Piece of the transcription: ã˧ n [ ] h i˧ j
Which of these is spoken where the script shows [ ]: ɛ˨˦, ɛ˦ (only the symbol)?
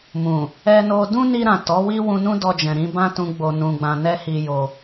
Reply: ɛ˦